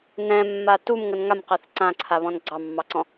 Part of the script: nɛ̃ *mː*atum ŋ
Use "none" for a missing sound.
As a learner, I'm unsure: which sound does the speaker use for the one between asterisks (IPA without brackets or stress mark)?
mː